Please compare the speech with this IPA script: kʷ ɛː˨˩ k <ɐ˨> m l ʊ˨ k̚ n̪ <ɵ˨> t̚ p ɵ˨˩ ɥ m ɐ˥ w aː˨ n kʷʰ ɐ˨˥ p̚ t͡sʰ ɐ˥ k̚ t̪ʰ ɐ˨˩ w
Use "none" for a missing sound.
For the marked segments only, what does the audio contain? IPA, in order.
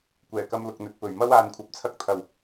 ɐ˧, ɵ˨

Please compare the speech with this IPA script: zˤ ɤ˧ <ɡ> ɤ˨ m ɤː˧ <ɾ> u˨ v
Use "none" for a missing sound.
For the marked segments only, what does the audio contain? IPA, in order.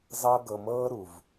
ɡ, ɾ

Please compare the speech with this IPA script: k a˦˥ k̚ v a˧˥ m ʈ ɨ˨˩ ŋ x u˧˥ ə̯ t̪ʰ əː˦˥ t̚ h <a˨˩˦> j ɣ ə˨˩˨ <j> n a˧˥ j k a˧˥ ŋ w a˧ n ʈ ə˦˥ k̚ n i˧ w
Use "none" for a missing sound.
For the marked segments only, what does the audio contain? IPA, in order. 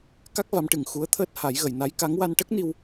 a˨˩˦, j

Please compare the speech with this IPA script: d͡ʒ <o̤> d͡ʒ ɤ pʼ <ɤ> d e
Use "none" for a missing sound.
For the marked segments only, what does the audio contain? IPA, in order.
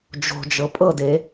o̤, ɤ

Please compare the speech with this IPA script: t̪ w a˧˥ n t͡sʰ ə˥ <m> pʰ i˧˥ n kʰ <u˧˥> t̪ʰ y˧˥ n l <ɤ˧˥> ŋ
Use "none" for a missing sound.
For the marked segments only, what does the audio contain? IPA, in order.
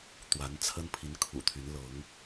n, ṵ˨˩, ɤ˧˥

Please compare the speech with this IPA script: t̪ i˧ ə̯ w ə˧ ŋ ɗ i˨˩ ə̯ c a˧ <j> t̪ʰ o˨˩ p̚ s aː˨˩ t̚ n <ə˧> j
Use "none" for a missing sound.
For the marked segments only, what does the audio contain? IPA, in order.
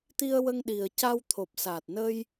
w, ə˧

